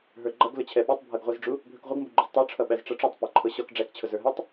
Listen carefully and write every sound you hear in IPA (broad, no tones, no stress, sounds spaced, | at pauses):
ɦ ə˞ ɡ͡ǃ ʌ ɡ l ʊ t͡ɕʰ ɛ ɓ u tˤ bʱ ʌ ɡ ʁʷ ʌ z ɖ͡ʐ u | bʱ ə˞ k ʁʷ ʌ ɡ m b u ɡ͡ǃ u z tˤ ə˞ ʈ͡ʂʰ ʌ ɓ æ z ʈ͡ʂ ʌ ʈ͡ʂ u tˤ p æ ǃʰ ʊ ɕ ɔ k ɖ͡ʐ æ k t͡ɕʰ ʊ z ə˞ ɦ ɛ tˤ